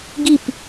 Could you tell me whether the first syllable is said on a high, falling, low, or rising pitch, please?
falling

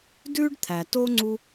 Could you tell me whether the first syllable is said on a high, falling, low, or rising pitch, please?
high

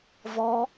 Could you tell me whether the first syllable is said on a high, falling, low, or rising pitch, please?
high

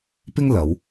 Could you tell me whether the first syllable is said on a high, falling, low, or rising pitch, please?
high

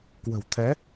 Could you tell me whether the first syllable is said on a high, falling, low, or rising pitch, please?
low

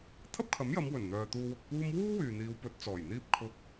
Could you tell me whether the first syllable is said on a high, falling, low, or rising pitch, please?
high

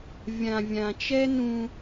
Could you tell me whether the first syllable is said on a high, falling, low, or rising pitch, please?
low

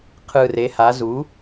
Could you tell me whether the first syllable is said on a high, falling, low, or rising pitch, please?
low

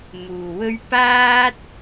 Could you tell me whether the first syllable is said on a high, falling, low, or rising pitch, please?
low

